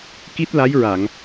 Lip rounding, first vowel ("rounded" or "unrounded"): unrounded